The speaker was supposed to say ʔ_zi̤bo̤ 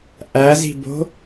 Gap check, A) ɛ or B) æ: B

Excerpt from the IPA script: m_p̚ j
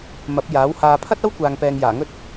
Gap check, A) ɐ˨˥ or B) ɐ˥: A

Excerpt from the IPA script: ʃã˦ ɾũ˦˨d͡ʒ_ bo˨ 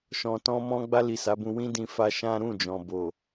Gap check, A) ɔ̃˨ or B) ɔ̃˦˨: A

